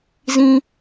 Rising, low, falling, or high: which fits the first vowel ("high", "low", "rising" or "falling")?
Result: high